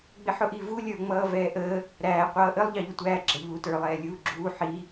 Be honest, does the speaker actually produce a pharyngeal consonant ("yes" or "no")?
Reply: yes